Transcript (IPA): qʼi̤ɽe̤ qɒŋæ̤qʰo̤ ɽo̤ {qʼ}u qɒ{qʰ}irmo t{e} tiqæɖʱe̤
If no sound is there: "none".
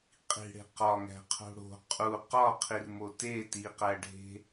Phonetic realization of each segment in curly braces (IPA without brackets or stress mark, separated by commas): qʼ, qʰ, e